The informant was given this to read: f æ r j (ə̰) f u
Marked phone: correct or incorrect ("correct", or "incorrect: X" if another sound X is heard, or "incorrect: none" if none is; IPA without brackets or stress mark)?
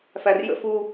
correct